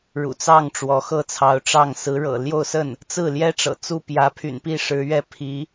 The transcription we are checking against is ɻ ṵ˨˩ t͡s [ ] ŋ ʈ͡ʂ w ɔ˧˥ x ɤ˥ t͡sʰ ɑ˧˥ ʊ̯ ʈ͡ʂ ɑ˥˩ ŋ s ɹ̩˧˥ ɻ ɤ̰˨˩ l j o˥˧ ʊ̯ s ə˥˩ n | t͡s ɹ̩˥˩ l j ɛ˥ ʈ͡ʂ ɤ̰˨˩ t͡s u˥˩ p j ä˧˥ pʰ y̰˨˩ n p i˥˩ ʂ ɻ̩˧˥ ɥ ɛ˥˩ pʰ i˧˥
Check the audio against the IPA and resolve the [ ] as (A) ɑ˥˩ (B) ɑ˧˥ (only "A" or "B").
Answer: A